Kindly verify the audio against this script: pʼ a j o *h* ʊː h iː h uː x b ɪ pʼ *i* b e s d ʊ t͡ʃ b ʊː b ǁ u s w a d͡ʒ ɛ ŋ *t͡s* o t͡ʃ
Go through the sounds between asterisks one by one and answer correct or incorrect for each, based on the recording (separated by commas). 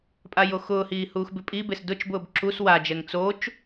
incorrect, correct, correct